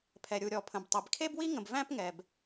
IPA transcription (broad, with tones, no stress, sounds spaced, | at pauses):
pʰ ɛ˨ ɾʲ u˨ ɾʲ ɔ˨ pʰ ə̃˨ b tˤ i˨ b kʰ e˦ b w i˦ ŋ ə̃˨ b v æ̃˦ p ŋ ɛ˨ b